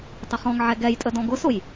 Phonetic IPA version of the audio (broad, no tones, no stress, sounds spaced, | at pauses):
tˤ ɪ χ ɔ̃ ŋ ʕ ɛ ɡ ɛ j tʼ ə d ɔ̃ ɡ ʊ s ʊ j